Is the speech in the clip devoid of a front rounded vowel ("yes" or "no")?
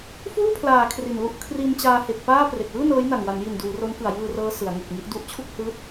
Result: yes